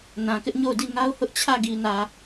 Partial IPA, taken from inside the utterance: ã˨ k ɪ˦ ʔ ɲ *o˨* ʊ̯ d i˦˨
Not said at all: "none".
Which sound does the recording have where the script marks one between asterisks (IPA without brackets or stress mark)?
o˦˨